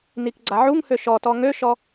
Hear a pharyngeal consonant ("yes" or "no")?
yes